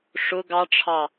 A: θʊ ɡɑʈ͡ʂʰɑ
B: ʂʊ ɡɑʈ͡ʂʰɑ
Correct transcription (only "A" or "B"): B